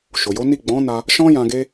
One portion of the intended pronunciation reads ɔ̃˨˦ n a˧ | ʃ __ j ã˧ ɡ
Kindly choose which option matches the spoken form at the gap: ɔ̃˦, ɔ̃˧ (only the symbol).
ɔ̃˦